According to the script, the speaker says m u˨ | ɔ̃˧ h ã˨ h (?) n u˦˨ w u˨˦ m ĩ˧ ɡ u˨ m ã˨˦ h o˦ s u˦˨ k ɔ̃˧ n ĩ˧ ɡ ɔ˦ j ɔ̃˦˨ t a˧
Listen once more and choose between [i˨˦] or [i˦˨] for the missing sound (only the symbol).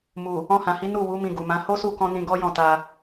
i˨˦